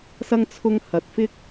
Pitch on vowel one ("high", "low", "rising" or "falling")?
high